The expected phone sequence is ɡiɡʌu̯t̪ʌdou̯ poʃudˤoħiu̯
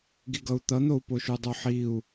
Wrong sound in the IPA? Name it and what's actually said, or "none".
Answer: d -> n̪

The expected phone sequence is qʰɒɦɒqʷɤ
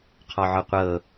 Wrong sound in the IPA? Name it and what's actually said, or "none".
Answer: ɦ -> ʕ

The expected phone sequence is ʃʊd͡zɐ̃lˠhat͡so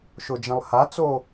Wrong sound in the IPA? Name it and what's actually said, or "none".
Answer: d͡z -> d͡ʒ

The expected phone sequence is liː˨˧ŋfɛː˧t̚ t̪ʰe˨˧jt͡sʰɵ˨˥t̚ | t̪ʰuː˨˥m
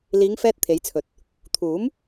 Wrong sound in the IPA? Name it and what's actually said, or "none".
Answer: none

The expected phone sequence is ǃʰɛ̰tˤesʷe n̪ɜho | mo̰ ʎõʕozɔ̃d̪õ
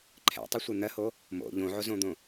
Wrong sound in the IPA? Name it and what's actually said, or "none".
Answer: ɔ̃ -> õ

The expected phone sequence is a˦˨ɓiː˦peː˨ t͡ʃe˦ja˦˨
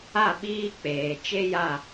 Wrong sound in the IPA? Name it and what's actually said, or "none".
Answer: p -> k͡p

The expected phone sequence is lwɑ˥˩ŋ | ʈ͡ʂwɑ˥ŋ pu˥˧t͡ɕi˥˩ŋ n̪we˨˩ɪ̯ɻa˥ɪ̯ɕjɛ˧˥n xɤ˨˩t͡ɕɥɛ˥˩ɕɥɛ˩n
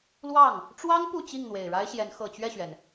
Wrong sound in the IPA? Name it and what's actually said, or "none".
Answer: none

